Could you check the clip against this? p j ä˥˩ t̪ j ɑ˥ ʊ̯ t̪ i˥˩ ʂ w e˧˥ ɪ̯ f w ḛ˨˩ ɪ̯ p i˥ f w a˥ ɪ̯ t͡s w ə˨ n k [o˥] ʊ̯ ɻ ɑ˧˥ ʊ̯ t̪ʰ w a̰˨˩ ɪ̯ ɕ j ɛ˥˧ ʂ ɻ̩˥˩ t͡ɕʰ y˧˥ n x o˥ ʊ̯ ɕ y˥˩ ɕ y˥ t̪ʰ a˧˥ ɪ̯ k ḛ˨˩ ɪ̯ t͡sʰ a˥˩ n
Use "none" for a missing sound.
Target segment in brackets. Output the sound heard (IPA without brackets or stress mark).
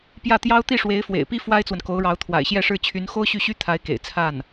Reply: o˧˥